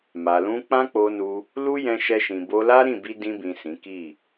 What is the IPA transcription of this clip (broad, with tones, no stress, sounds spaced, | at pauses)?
m a˨ l ũ˧ k͡p ã˦ k͡p o˧ n u˧ | l u˦ j ɛ̃˧ ʃ ɛ˧ ʃ ĩ˨ b o˧ l a˦ ɾ ĩ˦˨ b i˧ d ĩ˧ b ĩ˨ s ĩ˨˦ k i˦˨